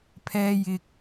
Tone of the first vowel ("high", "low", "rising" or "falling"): high